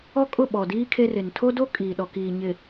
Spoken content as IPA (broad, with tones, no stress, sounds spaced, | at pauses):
ɔ˦ kʼ ʊ˦˨ ɓ ɔ˨ d iː˦ kʰ e˦ r ɪ˨ n tʰ o˦ d o˦ kʼ iː˨ ɗ ɔ˨ k iː˨ ɲ ɪ˨